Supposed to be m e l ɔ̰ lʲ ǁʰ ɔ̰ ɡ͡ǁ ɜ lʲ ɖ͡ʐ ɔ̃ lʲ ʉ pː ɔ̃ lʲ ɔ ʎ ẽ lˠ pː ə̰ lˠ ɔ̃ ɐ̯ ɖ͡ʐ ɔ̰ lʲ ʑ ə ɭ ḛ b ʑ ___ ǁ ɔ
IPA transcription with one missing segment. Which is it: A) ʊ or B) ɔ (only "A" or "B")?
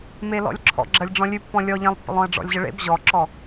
B